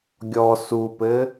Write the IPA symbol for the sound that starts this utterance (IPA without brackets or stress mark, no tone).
ɡʲ